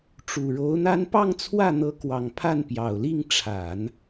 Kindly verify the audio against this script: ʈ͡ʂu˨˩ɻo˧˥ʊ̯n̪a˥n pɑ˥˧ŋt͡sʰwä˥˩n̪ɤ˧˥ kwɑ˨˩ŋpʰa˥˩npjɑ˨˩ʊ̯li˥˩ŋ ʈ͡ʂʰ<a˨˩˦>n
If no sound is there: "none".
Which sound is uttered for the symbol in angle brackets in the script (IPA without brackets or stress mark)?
a˨˩˦